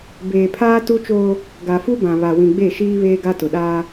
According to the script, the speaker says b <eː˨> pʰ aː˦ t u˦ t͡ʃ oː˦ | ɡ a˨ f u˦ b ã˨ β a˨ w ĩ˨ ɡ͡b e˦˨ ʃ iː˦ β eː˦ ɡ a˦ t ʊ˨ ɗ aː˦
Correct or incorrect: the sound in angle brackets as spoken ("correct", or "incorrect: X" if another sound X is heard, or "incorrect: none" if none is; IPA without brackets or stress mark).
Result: correct